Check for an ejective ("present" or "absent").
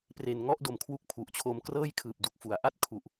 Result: absent